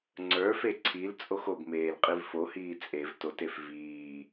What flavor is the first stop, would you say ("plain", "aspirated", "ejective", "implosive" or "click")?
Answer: click